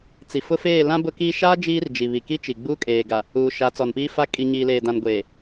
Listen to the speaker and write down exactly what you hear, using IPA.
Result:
t͡s i˨ f ʊ˦ f eː˦˨ l ã˦ b ʊ˦ k i˦ ʃ a˦ d͡ʒ iː˦ r d͡ʒ i˨ β i˨ k i˦ t͡ʃ i˨ ɡ͡b u˦ kʼ eː˨ ɡ a˨ | uː˨ ʃ a˨˦ t͡s ɔ˨ n p iː˦ f a˦ kʼ i˨ ɲ iː˨ l eː˨ d ã˨ n ɡʷ eː˨

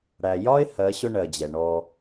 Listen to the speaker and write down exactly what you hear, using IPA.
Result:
ɽ æ˨ j ɒ˦ ɪ̯ h ɜ˨˦ ɕ ʊ˦ ɳ ɜ˨ d͡ʑ ɛ˨ ɳ ɔ˦

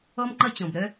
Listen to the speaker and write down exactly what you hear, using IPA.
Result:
ɔ˦ m ŋ͡ǃ ʌ˦ t͡ɕ ɔ̃˨ b ɾ œ˦

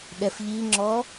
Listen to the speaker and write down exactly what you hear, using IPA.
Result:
ɗ ɛ f ʎ i ŋ͡ǁ ɔ

